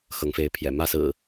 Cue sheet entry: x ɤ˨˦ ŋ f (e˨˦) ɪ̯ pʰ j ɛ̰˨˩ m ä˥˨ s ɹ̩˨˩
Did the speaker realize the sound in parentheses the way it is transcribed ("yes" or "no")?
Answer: yes